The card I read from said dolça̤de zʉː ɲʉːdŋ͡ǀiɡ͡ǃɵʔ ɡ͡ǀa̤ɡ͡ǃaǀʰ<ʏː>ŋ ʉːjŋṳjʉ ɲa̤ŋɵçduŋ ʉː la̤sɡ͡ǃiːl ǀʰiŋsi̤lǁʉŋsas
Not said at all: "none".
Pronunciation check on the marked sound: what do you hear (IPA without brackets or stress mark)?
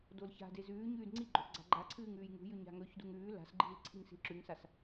ɨː